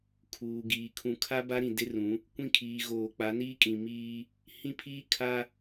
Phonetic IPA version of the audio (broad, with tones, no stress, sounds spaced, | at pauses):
kʰ uː˨ ɡ iː˨ kʰ ũ˨ kʰ a˦ b a˦ ɾ ĩ˨ d e˦ r ũ˨˦ | kʷ ĩ˦ kʰ iː˨ ɣ oː˨ k͡p a˨˦ n iː˦ kʼ ĩ˨ m iː˦ | h ĩ˦ pʰ iː˦ kʰ a˦